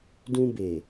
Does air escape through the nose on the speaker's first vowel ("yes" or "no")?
yes